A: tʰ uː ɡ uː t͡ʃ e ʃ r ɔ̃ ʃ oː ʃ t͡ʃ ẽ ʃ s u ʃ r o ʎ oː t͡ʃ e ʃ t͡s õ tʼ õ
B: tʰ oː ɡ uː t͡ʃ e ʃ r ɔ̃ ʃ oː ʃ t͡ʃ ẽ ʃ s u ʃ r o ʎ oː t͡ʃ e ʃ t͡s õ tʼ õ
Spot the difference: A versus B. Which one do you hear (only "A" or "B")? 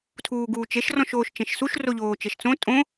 A